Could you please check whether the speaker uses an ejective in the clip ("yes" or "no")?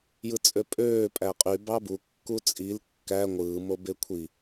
yes